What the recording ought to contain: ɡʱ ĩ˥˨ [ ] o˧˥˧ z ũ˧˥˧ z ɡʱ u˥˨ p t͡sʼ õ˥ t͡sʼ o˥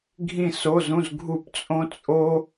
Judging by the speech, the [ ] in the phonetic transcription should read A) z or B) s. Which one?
B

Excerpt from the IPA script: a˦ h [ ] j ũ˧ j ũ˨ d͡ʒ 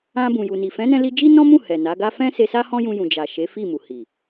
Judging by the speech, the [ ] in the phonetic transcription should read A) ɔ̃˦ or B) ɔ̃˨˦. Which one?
A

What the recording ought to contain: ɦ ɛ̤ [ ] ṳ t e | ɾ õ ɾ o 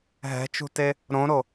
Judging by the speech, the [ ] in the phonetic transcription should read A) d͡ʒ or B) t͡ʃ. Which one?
B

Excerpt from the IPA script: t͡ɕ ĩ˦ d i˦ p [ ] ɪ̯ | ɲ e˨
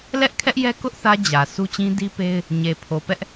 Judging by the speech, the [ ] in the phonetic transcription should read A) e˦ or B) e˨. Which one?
A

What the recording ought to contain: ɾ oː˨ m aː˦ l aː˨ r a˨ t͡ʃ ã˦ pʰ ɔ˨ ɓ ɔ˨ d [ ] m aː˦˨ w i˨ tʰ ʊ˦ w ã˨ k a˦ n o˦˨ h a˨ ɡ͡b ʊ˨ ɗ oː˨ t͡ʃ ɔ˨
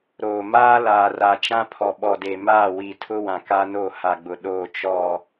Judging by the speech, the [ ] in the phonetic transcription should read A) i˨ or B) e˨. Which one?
B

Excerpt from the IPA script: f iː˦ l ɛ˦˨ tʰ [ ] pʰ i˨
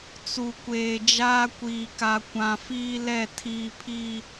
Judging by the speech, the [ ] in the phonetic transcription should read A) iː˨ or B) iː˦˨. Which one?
A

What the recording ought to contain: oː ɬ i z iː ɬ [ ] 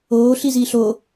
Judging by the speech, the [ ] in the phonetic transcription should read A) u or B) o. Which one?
B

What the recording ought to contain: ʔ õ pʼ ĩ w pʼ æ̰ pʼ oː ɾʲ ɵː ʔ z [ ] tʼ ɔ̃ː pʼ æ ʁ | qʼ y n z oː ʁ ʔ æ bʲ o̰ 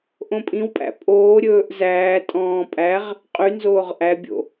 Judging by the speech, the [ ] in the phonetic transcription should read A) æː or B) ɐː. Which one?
A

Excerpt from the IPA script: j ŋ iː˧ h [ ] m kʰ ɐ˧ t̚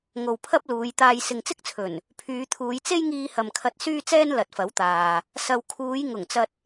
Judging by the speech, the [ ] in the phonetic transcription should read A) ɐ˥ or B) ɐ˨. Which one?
B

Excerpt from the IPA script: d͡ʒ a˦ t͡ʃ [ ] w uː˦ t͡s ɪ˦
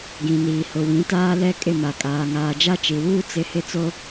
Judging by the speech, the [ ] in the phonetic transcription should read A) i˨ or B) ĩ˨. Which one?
A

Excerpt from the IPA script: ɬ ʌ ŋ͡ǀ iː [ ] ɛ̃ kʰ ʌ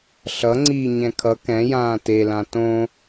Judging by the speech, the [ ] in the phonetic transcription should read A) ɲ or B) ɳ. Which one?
A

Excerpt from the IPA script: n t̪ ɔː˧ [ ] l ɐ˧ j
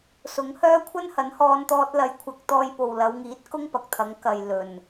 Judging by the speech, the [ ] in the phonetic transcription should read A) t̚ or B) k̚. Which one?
A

